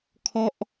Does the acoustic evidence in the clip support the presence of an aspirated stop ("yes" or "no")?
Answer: yes